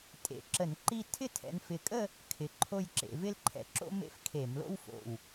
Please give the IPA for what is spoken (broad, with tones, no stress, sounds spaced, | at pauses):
tʼ ḛ˨˦ ǁ ə˧˩˧ n ǃ i˥˧ tʰ ɪ˥˩ tʰ ɛ̰˨˦ n f ɪ˧˩ kʼ ə˥˧ | kʰ ɪ˧˩ ǃʰ o˥˧ j ǁ ḛ˨˦ v ɪ˥ l ǃʰ ɛ̰˧˩ ǁ o̰˥ m ḛ˥˧ f kʰ e˧˩˧ m l o̰˥ w f o̰˧˩ w